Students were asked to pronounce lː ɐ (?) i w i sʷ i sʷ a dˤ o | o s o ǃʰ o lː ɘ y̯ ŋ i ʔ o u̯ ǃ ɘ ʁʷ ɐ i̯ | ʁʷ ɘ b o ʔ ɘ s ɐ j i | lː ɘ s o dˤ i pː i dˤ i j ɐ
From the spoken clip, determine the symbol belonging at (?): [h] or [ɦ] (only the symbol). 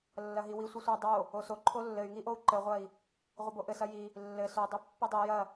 ɦ